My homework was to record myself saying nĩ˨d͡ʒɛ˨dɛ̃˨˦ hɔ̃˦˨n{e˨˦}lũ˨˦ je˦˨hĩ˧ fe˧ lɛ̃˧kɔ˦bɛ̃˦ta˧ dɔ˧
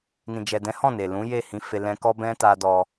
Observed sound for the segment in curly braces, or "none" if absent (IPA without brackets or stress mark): e˨